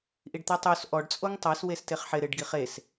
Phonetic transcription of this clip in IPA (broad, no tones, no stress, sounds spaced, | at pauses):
ʔ i ɖ t̪ ɛ tˤ o s ʔ ɔ ɖ t͡sʼ o ŋ tˤ a s w e s t e χ ħ ɪ ɾ ɪ ɖ ɡ i χ e s